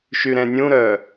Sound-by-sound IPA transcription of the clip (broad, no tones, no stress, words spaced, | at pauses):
ʃyɾɛ̃nʲũɾœ